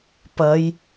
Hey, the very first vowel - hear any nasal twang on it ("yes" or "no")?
no